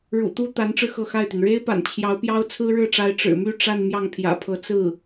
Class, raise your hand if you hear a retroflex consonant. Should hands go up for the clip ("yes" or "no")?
yes